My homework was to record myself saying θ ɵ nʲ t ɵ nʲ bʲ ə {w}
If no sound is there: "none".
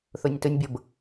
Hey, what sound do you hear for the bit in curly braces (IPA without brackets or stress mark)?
b